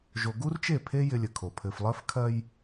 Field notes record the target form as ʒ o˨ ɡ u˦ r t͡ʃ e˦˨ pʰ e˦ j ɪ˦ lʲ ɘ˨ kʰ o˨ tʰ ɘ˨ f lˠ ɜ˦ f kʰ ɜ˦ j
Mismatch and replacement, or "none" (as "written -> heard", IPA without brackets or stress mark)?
tʰ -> pʰ